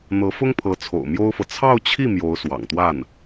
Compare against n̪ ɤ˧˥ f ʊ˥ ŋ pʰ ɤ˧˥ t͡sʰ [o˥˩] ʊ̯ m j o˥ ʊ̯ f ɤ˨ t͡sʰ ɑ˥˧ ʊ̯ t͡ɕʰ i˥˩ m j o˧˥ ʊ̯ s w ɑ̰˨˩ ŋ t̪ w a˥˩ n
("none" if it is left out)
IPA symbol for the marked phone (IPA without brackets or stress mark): o̰˨˩